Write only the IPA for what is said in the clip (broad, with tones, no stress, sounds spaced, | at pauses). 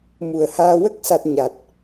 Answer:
m u˨˩ ə̯ h aː˧ w ə˦˥ k̚ s a˨˩ t̚ ɲ a˨˩ t̚